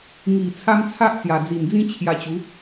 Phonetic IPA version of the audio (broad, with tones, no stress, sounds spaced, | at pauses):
ŋ i˨˩ t͡sʰ a˦ m t͡sʰ a˦ ʔ t͡s j a˨˩ d͡z i˨˩ n d͡z ĩ˦ t͡ɕʰ j a˧ t͡ɕ u˨˦